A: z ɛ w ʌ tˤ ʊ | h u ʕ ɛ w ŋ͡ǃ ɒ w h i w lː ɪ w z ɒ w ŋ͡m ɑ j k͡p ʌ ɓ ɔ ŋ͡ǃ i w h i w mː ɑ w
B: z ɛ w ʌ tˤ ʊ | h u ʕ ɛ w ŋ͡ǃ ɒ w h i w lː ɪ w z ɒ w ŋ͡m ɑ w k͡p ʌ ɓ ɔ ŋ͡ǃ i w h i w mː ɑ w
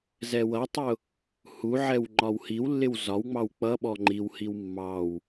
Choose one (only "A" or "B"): B